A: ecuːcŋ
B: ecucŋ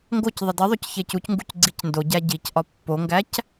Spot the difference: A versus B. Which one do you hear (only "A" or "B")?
B